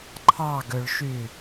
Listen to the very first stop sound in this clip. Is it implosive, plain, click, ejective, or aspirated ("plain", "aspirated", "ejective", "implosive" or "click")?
click